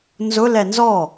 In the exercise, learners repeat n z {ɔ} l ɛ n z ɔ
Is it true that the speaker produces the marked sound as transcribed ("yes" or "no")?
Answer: no